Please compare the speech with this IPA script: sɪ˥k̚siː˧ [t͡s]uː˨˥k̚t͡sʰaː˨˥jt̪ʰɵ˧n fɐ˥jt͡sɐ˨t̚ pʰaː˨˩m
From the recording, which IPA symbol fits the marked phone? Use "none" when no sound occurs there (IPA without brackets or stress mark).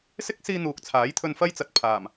n̪